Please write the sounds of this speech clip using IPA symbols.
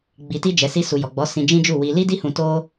ɡ͡b i˧ t i˦ d͡ʒ ɛ˧ s i˧ s u˨ j ɔ˨ ɡ͡b ɔ˨˦ s ĩ˧ d͡ʒ ĩ˦ d͡ʒ u˦˨ w i˧ l i˦ d i˦ h ũ˧ t o˦

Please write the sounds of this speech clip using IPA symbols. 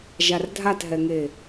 ʒ a r dʱ a t ɦ ɛ ŋ e

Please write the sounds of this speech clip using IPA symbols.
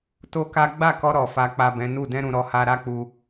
t o˦ k a˦ ɡ͡b a˦˨ k ɔ˧ ɾ ɔ˨ f a˨ k͡p a˨ b ɛ̃˨˦ n u˦˨ d ɛ̃˧ ɾ ũ˨ ɾ ɔ˧ h a˧ ɾ a˦ k͡p u˧

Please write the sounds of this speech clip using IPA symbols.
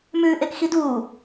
m ʉː ʔ e k x i d uː

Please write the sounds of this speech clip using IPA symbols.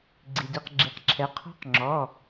ɡ͡ǀ i˩ d i˩˧˩ q ɡ͡ǁ i˩˧ q ǁʰ ɛ˩˧ qʰ ɔ̤˧˥ q ŋ͡ǁ ɔ˩˧˩

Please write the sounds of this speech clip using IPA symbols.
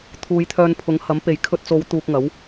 t̪ʰ uː˨˧ j t̪ʰ œː˧ n pʰ ʊ˨˥ ŋ h ɐ˨˥ m p e˨ j kʰ ɵ˧ t̚ t͡s o˨˧ w t̪ uː˧ k̚ ŋ ɐ˨˥ w

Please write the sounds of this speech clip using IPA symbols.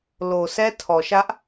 l o˨ s ɛ˦ tʰ ɔ˨ ʃ ä˦ ʔ

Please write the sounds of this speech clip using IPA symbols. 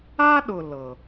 a˦ ɗ ʊ˨ l ɤ˨

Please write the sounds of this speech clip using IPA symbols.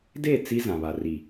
d e˦˨ t͡s i˦ z ã˨ β a˨ r i˨

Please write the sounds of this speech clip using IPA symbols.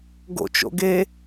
ɡ o̰ t͡ʃ o̰ ɡ e

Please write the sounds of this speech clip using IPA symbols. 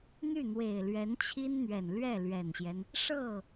n̪ y˥˩ n̪ w e˨˩ ɪ̯ l ɥ ɛ˧˥ n t͡ɕʰ i˥ n n̪ ɥ ɛ˨˩ n l ɥ ɛ˥˩ l ɥ ɛ˨˩ n ɕ j ɛ˦ n | ʂ ɤ˥˩

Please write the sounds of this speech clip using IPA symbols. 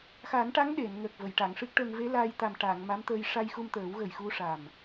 x a˨˩˦ n ʈ a˧˥ ŋ ɗ e˨˩˨ n ŋ əː˨˩ k̚ v ə˨˩˨ j ʈ a˨˩˨ ŋ ʂ ɨ˦˥ k̚ ʈ əː˧ ŋ v e˧˥ l aː˧ j t̪ a˨˩ m ʈ a˨˩˨ ŋ m a˧˥ m t̪ əː˧ j ʂ a˧ j x u˧ m t̪ əː˨˩˦ w ɣ ə˨˩ j x u˧ ʂ a˨˩ m

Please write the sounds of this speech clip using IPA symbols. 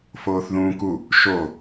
f oː θ ð ũː k u | ʃ o

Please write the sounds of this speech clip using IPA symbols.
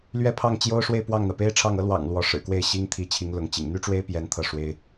l ɥ ɛ˥ pʰ ɑ˥˩ ŋ t͡ɕ j o˥ ʊ̯ ʂ w e˥˧ ɪ̯ p w ɑ˥˩ ŋ n̪ ä˩ p e˥ ɪ̯ ʈ͡ʂʰ ɑ˥˩ ŋ ɤ˥ l w ɑ̰˨˩ ŋ l w ɔ˧˥ ʂ ɻ̩˨˩ k w e˥˩ ɪ̯ ɕ i˥ ŋ t̪ʰ i˧˥ t͡ɕʰ i˧˥ ŋ l ʊ˧˥ ŋ t͡ɕ ḭ˨˩ ŋ n̪ y˥ ʈ͡ʂ w e˥ ɪ̯ p j ɛ˧˥ n t̪ʰ ɤ˥˩ ʂ w e˥ ɪ̯

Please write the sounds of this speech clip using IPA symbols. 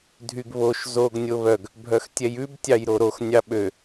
dʱ y ɡ β o ʃ z o ɡ nʲ o β œ ɡ | bʱ œ x tʲ ɛ j ʉ b tʲ ɑ j ɾ o ɾ o x nʲ ɑ ɓ ø

